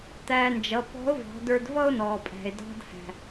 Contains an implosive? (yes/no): no